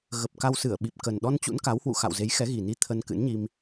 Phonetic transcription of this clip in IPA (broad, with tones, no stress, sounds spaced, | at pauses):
ɣ ə˨˩ p̚ k a˧ w s ɨ˧˩ ə̯ ɓ i˨˩ p̚ k ə˨˩ n ɗ ɔ˧ n t͡ɕ ṵ˧˥ n k a˨˦ w h w ṵ˧˨ x a̰˧˨ w z e˨˦ j x ɛ˨˦ ɣ i˨˩ n i˧ t̪ʰ ə˧ n k ɨ̰˧˥ n ɲ i˧ m